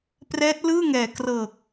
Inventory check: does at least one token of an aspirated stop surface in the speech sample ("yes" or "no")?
no